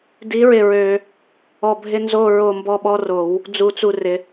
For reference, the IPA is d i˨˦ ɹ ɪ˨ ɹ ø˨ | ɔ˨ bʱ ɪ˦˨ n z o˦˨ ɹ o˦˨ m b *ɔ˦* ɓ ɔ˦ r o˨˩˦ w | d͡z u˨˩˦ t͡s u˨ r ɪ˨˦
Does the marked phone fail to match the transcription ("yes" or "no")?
no